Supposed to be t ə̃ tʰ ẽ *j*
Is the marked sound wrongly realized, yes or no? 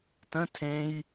no